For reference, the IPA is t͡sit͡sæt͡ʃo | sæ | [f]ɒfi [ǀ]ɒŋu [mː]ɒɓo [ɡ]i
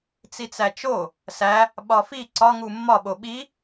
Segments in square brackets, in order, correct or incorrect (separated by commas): incorrect, correct, correct, incorrect